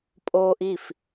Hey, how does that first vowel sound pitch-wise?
high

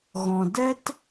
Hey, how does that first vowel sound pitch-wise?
low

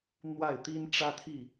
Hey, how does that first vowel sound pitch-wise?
falling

